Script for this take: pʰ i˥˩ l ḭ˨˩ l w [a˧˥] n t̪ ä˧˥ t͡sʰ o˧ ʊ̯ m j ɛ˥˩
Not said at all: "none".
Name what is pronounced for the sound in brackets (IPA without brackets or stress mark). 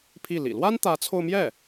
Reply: a˥